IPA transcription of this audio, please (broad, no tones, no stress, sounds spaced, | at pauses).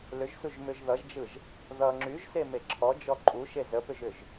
l ʏ ʒ s u ʒ m ʏ ʒ ð ʌ ʒ d͡ʒ ɯ ʒ | ð ʌ ŋ͡ǁ y ʒ s e m e ǁʰ ɔ d͡ʒ ɔ ǃʼ u ʃ e z ə p ʏ ʒ ʏ ʒ